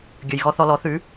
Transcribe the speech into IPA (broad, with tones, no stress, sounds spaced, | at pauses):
ɡʲ ɵ˩ j ɣ ɔ˧ θ ɔ˧ l ɔ˩˥ θ ʉ˩˥